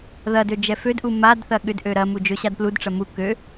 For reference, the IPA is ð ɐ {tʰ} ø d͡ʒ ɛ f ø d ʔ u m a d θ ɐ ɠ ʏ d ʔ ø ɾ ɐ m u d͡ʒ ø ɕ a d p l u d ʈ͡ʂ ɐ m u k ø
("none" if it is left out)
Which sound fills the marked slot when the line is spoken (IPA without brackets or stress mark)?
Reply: d